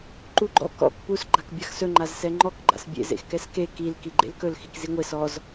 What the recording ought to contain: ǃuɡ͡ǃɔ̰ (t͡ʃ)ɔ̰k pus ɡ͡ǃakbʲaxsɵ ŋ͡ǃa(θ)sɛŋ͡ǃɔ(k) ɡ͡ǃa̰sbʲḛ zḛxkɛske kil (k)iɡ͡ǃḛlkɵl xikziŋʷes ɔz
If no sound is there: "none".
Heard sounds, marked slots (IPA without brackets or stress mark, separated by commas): k, z, k, k